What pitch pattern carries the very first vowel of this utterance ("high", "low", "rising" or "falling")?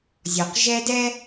low